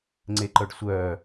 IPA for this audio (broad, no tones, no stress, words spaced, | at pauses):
ŋ͡ǀeǃœɖsʷœː